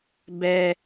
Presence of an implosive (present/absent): absent